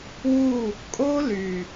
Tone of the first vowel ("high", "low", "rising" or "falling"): falling